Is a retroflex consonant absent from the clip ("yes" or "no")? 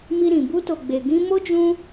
yes